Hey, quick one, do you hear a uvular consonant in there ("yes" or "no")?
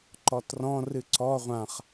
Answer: yes